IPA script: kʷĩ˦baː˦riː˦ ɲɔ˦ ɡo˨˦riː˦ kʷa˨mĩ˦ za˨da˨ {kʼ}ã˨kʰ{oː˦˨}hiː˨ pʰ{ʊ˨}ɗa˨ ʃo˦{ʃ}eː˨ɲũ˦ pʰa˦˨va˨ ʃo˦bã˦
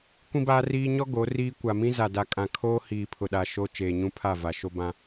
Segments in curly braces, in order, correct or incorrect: correct, incorrect: oː˦, correct, incorrect: t͡ʃ

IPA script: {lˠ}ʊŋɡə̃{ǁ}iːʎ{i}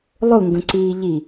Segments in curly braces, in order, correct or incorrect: correct, incorrect: ǀ, correct

